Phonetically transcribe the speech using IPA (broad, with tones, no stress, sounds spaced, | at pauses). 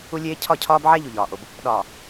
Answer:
u˦ lʲ eː˦ cʰ ɒ˦˨ cʰ ɒː˦ b ʕ æ˦ ʎ u˨ ʎ ɒː˨ ʔ o˨ b | ɗ ɒː˨